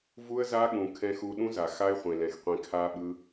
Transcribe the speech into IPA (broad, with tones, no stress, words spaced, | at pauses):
vu˦ə̯za˦ɠũ˨ kʰɛ̃˧xu˧ɗũ˦za˨ xa˦ɪ̯χʷẽ˨lɛ̃˨xqʷẽ˧ kʰa˦ɓɯ˦